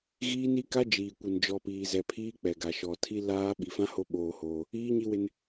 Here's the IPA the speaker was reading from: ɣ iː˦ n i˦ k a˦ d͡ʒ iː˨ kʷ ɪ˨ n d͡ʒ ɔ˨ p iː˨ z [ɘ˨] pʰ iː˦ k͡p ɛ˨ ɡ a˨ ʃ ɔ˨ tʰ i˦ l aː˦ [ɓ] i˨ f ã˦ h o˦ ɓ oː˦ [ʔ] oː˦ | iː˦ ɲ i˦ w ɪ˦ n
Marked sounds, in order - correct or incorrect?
incorrect: ɛ˨, correct, incorrect: h

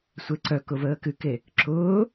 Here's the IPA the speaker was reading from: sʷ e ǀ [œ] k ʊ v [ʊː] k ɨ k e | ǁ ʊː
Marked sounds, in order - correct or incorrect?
correct, incorrect: əː

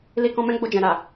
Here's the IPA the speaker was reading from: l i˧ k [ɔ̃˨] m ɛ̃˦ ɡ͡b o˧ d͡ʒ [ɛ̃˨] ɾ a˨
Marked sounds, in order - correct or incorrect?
incorrect: ɔ̃˧, correct

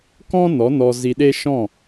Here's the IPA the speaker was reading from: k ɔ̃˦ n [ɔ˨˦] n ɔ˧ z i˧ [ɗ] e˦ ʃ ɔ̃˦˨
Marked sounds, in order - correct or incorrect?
correct, correct

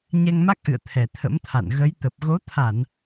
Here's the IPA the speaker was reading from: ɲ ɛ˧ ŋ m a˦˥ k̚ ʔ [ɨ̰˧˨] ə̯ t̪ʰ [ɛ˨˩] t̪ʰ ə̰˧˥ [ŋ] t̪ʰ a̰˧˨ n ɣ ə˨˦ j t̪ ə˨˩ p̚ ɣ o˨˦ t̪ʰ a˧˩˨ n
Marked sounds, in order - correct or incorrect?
correct, correct, incorrect: m

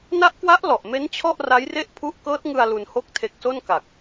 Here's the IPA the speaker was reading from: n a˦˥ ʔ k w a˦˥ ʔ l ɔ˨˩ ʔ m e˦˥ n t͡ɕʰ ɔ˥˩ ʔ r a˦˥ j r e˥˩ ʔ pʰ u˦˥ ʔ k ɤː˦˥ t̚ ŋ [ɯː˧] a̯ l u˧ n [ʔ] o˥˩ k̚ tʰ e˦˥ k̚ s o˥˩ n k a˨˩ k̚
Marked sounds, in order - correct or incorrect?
incorrect: ɯ˧, incorrect: h

